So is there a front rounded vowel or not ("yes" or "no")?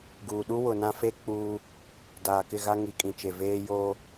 no